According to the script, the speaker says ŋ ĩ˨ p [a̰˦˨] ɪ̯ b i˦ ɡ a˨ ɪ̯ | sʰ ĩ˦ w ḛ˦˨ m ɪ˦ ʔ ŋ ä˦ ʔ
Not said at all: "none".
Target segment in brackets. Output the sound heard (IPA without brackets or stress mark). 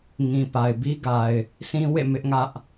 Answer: a˨